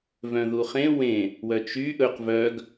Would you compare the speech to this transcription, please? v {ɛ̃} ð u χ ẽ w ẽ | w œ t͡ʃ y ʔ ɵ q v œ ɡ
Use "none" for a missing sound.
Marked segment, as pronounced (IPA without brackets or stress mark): œ̃